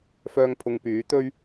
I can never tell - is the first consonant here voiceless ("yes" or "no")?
yes